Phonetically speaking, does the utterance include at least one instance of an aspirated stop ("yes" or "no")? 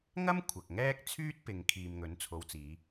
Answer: yes